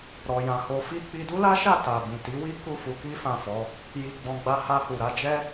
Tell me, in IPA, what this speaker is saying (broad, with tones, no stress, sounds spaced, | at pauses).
ɾ ɔ˧ j ã˧ h o˧ f i˦ k͡p i˧ d u˦ l a˦ ʃ a˦˨ t a˨ b ĩ˨ t i˨˦ w i˦ k u˦˨ f u˧ k i˦ f ã˦˨ f ɔ˨˦ | j i˧ ɡ͡b ɔ̃˧ ɡ͡b a˧ h a˧ h u˨ ɾ a˨˦ d͡ʒ ɛ˦